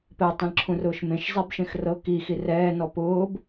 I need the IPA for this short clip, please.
p ɛ tˤ ẽ l ǁʰ ũ r ʊː ʃ m ẽ ʃ zˤ e b ʃ ẽ x r ɤ k i x i r ɛː n ɔ p ʊː b

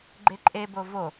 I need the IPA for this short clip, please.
ɡ͡ǃ e ǃʼ e b o v o

